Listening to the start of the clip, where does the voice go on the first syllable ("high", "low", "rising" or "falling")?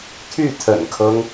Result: falling